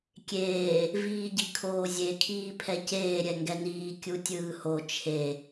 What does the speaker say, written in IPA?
kʲ eː | v iː ɟ i kʰ oː zʲ e kʰ iː pʰ ɛ c eː ɾʲ ɛ ŋ ɡ ɛ n iː kʲ u tʲ ɯː h o t͡ʃʰ e

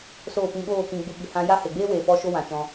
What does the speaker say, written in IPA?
s oː˦˨ p ĩ˧ ɓ oː˦˨ k ĩ˧ ɡ͡b u˧ ɓ i˨ h ã˧ j a˦ h e˨ ɡ͡b eː˦ w eː˨ p ɔ˦ ʃ o˦ w ã˨ t͡ʃ ɔ̃˧

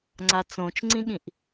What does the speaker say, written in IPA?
ŋ͡ǀ a t͡s õ t͡ʃ ŋ͡ǀ ĩ ɠ ĩ ʔ

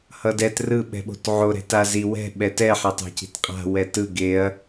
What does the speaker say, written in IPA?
h ʌ d ɛ t r ɯ ɓ ɛ̤ ɓ o̤ t ʕ o ɾ ɛ̤ t a z i w ɛ̤ ɓ ɛ t ɛ ħ a tˤ a̤ c i̤ t qʼ a̤ w ɛ t ɯ ɡ e ɐ̯

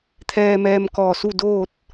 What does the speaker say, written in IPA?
t̪ʰ ɛː˧ m ɛː˧ m k ɔː˧˩ s u˥˨ d oː˥˨ t̚

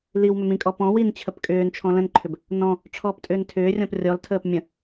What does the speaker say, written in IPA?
l i w m ʏ m ĩ kʼ ɔ p ɔ̃ w i n t͡ɕʰ ə p kʼ ʏː n t͡ʃʰ ɔ̃ l ə̃ n ǃʰ ʏ b | n ɔ̃ | ʈ͡ʂʰ ɔː p tʼ ʏː n tʰ ʏː rʲ ɔ̃ p rʲ ɔ l tʰ əː p mʲ ə̃

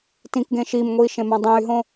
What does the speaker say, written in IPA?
t ĩ k ɡ ẽ ʃ i m ŋʷ iː ʃ ẽ m ã dˤ ẽ y̯ ɦ õ

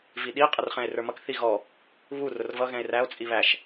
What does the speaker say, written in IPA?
v i ɗ i qʼ ə r χ ɛ̃ e̯ r ə˞ m ʌ k θ i ɣ ɔ | β u r ʊ r v ʌ ɣ ɛ̃ e̯ r æ o̯ t͡sʼ i β æ ʃ

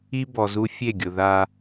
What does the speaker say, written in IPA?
i˦ b ɔ˨ z u˦ fʲ e˦˨ ɡʲ ʊ˨ ð a˦

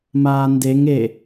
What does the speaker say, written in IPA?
m aː n d e ŋ e

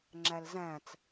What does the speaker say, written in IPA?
ŋ͡ǁ æ l z æ̃ t͡s

